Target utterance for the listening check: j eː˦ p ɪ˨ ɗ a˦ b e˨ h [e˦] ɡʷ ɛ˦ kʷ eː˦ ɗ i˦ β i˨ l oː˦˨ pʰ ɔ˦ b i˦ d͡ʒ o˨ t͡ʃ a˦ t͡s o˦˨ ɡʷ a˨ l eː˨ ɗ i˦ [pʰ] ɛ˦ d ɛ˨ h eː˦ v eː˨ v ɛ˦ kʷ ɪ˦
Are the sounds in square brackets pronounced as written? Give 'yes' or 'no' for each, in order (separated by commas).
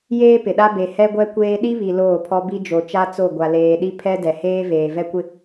no, yes